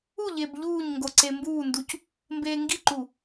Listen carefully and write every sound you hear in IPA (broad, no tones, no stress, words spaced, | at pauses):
uʎeb ʎuːɲ ŋɡoǀembuːnduc | mbeːŋɡiǃu